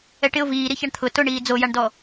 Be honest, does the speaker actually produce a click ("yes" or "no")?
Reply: no